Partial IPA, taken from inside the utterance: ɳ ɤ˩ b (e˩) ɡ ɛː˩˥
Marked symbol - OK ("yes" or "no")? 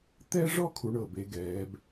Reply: no